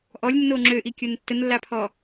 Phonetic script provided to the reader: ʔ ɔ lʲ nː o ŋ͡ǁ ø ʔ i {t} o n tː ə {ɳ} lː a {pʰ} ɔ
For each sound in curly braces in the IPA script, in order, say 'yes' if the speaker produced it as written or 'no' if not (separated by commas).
no, no, yes